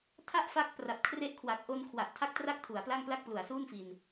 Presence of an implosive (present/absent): absent